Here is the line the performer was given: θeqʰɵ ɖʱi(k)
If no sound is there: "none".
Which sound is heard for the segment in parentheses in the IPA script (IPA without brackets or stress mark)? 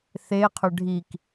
k